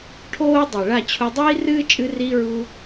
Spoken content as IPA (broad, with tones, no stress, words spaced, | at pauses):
ʈʰoː˦ dˤɜ˨ɭa˦˨t͡ɕʰu˧ dˤiː˦rɨː˦t͡ʃʼɨ˧riː˧ ɹu˧